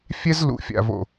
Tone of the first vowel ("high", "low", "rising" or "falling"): high